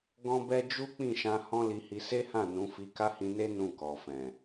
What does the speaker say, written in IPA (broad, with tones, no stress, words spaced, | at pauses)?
ɡɔ̃˦bɛ˦ d͡ʒu˦k͡pĩ˦˨ʃã˧ hɔ̃˦li˧hi˧ se˦hã˦˨ nũ˨˦ fi˧ka˦hĩ˧ne˦ nũ˦˨kɔ˨fɛ̃˨